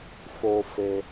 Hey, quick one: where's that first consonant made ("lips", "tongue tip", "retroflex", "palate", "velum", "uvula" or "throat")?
lips